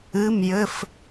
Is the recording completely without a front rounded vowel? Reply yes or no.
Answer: yes